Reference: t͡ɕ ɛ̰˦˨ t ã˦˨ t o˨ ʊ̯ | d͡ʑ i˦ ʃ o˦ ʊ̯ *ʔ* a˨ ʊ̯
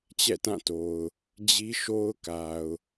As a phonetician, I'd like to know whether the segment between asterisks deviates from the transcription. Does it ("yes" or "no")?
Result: yes